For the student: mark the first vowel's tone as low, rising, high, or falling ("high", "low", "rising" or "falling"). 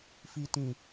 low